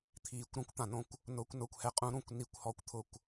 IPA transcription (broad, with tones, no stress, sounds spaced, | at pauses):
t̪ʰ iː˨˩ kʷ ɾ ũ˨˥ kʷ t̪ ã˨˩ n õ˦˨ kʷ | n ʊː˨˥ kʷ n ʊː˨˩ kʷ h ɛ˨˥ qʼ ũ˨˥ ɾ ũ˨˩ kʷ n i˨˩ kʷ h ɔ˨˩ kʷ t̪ʰ ʊ˨˩ kʷ